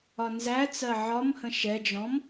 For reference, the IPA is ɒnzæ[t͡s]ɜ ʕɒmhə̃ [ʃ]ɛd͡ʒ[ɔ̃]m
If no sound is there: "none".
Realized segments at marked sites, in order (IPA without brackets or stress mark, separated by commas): t͡s, ʃ, ɔ̃